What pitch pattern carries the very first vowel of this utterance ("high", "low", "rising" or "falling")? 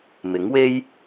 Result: rising